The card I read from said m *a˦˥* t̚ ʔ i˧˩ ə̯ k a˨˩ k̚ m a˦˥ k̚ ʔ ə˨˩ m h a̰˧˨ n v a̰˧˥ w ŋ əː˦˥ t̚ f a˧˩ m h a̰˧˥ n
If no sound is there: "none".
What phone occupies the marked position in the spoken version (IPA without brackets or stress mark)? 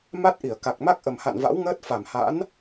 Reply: a˦˥